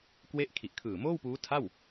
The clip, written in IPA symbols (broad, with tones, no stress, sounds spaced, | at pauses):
k w e˦˥ ʔ kʰ i˨˩ ʔ kʰ ɯː˨˩ m oː˥˩ w p uː˦˥ tʰ a˥˩ w